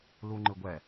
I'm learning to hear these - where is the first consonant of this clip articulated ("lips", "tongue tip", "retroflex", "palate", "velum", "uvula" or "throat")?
tongue tip